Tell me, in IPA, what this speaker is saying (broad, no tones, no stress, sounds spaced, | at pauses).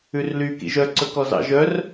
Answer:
ʉ r l y k ḭ ʒ œ ǀ ɵ k ɔ z ɑ̰ ʒ œ r